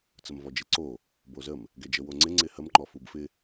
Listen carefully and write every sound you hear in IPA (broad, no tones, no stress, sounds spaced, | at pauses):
t͡s ə m v ɔ d͡ʒ e ǀ o | b o z ə m | ɡ ɛ d͡ʒ ə w o ŋ͡ǀ ɪ ŋ͡ǀ ɪ h ə m ŋ͡ǃ ɔ f u b f ɪ